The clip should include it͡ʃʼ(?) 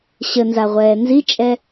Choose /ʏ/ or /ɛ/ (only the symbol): ɛ